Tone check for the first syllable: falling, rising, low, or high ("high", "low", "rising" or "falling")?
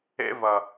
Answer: high